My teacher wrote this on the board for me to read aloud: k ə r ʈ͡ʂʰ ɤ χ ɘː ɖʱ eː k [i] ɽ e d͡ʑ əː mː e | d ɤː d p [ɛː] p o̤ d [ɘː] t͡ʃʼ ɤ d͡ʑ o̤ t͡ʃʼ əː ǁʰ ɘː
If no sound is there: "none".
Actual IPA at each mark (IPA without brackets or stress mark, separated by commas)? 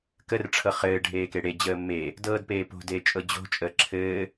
e, eː, eː